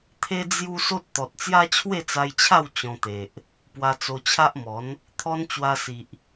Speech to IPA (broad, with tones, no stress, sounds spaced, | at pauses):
t̪ʰ e˦ d͡z j u˦ s o˦ t̚ t̪ ɔ˨ t̚ t͡s j a˦ t͡ɕʰ w e˥˧ t͡s a˧ j t͡ɕʰ a˥˧ w t͡ɕ ɔ̃˧ t̪ e˨ ʔ | p w a˧ t͡s o˧ t͡ɕʰ a˦ ʔ m ɔ˨˦ n | t̪ʰ ɔ˧ n t͡ɕ w a˧ s i˨ ʔ